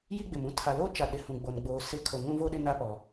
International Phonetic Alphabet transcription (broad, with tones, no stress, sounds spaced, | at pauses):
j i˦ ɡ͡b ɪ˨ m ũ˦ tʰ a˨ l oː˦ t͡ʃ a˨ ɗ ɪ˨ h ũ˨ ɡ͡b oː˨ n ɡ͡b oː˨ s ɪ˦˨ kʰ o˨ ŋ ũ˦ v o˦ ɗ ɪ˦ n a˦ p ɔ˨